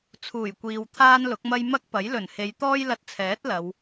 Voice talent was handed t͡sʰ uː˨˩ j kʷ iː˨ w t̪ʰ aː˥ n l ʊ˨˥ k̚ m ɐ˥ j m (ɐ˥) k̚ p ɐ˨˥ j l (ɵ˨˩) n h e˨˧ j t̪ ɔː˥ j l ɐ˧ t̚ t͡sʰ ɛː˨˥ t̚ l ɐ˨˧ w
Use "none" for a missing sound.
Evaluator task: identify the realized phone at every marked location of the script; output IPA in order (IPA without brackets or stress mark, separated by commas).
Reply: ɐ˥, ɵ˨˩